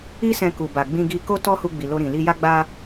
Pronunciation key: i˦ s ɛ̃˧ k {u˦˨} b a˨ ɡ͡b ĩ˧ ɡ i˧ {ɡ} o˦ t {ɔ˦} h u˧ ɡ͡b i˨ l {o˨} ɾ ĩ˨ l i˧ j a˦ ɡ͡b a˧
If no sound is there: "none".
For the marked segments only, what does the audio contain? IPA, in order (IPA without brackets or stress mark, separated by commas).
u˨, k, ɔ˦, o˧